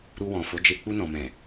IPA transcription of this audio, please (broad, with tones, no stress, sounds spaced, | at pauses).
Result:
ɾ u˧ w ɔ̃˨ f o˨˦ d͡ʒ e˧ k͡p u˧ n ɔ̃˨ m ɛ̃˨